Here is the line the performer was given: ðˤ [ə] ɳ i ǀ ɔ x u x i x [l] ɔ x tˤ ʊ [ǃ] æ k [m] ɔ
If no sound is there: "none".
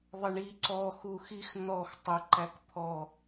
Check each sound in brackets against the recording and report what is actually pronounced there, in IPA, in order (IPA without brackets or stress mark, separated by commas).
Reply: ə, n̪, ǃ, pʰ